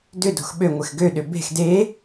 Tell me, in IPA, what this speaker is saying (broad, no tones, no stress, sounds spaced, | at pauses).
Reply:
d ʏ d o̤ x ɓ ø ŋʷ ɪ x ɡ ø ɗ ʏ b e̤ x d e